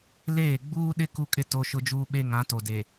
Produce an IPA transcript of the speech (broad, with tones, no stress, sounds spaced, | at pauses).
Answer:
l eː˦˨ ɡ͡b uː˦ ɗ ɪ˦ k u˦ kʼ ɪ˦ t o˦ ʃ ʊ˦ d͡ʒ uː˦ ɓ e˦ ŋ ã˨˦ t o˨ d e˨